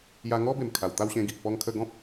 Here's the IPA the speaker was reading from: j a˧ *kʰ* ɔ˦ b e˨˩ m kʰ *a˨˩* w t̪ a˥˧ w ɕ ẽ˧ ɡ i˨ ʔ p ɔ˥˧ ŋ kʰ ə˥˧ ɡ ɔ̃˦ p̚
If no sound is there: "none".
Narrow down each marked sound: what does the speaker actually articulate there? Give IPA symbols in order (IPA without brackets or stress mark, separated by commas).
ŋ, a˨˩